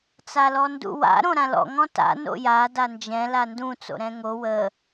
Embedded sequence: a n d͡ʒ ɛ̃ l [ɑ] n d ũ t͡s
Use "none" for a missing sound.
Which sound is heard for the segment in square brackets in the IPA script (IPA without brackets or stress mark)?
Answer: a